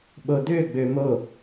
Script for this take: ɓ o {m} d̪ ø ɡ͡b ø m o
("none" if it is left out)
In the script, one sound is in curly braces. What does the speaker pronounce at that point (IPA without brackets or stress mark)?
none